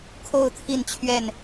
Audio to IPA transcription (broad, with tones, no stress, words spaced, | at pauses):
kʰo˥˨ʊ̯t̪ʰi˥˨nt͡ɕʰɥɛ˥˨n